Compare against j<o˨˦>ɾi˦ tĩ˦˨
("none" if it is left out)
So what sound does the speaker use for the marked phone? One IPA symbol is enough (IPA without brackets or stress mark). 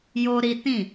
o˦